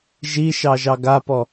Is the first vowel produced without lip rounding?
yes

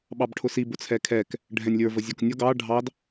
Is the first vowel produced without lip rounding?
yes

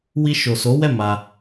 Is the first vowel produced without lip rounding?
yes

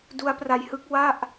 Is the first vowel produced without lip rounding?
no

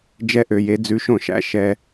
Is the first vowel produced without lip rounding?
yes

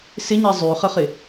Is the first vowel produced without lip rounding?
yes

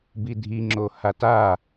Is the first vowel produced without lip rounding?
yes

